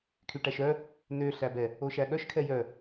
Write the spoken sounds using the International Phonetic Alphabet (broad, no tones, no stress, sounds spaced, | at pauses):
kʰ y ʈ æ ʃ œ | n ø ɬ æ b ɛ | o ʃ æ ɠ œ ʃ kʰ ɛ j œ